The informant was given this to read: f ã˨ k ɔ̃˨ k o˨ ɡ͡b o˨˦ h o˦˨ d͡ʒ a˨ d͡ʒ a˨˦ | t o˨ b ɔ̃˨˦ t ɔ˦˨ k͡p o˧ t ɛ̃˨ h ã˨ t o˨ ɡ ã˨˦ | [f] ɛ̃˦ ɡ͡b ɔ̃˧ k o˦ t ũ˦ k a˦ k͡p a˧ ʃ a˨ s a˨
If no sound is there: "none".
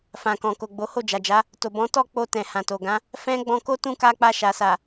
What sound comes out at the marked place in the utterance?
f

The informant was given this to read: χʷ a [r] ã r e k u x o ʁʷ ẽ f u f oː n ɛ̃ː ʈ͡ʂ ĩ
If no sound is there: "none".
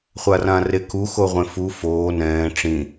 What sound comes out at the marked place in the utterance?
r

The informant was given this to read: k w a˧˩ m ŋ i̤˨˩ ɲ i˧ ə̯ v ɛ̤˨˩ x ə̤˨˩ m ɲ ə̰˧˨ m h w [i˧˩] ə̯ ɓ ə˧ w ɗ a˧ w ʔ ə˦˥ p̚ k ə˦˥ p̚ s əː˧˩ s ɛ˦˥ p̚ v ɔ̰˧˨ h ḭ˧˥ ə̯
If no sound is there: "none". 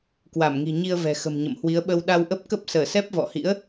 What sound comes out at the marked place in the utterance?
i˨˦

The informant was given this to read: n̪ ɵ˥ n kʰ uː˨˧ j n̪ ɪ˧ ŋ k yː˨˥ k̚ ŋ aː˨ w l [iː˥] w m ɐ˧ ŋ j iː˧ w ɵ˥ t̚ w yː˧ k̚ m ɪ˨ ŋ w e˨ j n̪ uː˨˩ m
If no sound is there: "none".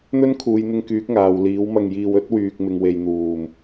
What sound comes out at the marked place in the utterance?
iː˨˥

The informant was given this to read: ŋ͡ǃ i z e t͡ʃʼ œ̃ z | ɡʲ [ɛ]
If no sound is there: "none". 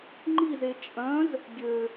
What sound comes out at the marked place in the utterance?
ø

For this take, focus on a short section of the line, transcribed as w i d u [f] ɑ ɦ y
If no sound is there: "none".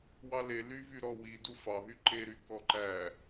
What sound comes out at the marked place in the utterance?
f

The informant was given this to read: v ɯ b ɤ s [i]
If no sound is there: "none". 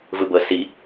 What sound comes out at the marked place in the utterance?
i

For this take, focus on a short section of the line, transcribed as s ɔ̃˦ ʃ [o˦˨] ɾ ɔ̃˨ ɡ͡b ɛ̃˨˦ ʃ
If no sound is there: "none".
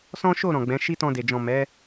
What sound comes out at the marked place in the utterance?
o˦˨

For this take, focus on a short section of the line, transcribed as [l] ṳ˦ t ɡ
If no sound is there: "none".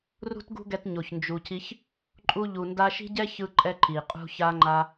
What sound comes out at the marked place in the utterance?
r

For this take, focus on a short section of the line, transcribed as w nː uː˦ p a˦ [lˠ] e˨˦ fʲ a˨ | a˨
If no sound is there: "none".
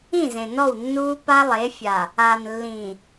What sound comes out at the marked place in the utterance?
lˠ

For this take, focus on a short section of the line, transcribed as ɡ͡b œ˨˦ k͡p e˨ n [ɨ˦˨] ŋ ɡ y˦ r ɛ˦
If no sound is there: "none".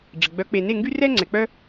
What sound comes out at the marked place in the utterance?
e˦˨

